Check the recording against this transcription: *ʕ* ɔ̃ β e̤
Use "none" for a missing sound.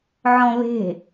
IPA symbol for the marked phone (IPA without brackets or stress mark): ʕ